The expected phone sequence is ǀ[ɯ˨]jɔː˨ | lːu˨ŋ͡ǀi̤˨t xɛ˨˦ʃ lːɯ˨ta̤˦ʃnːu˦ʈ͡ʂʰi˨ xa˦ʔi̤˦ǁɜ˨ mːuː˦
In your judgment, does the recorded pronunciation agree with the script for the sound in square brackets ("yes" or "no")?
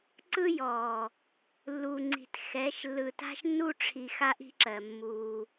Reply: no